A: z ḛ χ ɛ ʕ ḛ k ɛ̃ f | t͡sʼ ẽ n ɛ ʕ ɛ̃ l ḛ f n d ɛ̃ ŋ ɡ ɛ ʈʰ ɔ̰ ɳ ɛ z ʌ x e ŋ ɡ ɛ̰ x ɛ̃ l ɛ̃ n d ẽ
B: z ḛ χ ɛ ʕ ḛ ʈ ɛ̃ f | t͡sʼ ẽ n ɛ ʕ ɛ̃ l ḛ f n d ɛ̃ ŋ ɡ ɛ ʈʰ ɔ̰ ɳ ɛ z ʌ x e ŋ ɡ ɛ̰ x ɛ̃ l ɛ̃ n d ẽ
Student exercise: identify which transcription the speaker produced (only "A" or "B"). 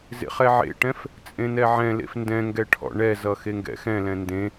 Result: B